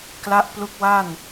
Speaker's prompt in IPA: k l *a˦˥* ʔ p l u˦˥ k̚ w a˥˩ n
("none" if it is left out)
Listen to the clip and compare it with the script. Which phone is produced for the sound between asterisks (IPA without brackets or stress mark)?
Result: a˦˥